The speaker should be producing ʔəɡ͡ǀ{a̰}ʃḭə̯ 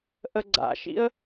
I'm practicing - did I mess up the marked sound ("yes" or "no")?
no